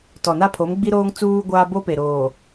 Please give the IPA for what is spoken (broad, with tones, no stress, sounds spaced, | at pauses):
t ɔ˨ n a˦ pʰ o˨˦ m ɡ͡b i˦ ɾ oː˦ ŋ t͡s uː˦ ɡʷ aː˦ b o˦ p e˨ ɾ oː˨